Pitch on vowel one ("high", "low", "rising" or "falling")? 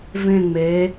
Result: falling